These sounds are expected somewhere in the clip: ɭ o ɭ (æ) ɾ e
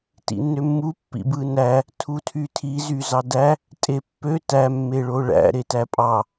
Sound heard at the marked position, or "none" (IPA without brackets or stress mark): æ̰